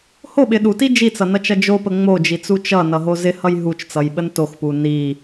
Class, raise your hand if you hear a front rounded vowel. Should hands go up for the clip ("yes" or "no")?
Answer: no